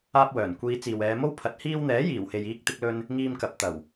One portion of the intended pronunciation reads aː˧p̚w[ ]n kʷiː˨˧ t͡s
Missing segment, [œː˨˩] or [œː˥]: œː˨˩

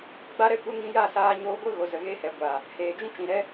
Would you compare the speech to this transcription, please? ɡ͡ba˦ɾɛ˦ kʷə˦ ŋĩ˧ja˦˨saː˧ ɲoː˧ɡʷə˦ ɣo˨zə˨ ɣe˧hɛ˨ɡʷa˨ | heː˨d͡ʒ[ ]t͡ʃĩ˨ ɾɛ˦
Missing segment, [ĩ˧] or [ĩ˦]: ĩ˦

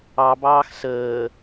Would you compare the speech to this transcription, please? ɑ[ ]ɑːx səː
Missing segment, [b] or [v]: b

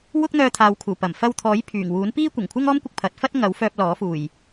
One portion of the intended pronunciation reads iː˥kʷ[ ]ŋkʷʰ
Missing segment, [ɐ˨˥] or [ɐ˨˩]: ɐ˨˩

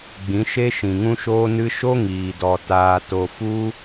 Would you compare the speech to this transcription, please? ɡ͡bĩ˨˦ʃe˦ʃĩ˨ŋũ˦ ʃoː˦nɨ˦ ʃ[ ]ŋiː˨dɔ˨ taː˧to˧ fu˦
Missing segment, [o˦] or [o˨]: o˦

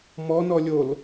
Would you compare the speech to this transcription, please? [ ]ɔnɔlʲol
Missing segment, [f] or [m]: m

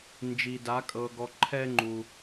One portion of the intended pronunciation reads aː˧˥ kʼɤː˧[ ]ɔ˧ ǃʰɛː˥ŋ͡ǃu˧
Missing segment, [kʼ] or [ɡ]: ɡ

